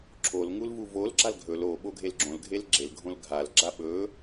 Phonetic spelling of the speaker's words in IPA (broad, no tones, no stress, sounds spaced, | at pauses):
ǁʰ o l ŋ u l v u v o l ɡ͡ǁ a l ɡʱ ɵ l o ɓ o ɡʱ e l ɡ͡ǁ õ l ɡʱ e l ɡ͡ǁ e l ɡʱ õ l ɡʱ a l ɡ͡ǁ a ɓ ɵ